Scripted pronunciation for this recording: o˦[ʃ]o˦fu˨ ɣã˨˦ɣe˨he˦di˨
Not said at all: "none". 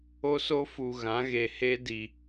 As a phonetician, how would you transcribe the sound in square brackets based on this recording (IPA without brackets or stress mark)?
s